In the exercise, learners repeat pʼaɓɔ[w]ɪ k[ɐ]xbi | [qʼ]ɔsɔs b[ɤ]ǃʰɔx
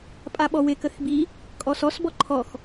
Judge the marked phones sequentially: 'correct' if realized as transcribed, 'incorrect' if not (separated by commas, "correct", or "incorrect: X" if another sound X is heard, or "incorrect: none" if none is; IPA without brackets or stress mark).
correct, incorrect: ə, incorrect: kʼ, incorrect: ɔ